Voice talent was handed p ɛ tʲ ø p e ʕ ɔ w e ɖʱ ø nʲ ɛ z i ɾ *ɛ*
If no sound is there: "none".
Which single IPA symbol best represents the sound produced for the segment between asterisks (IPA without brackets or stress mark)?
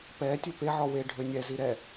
ɛ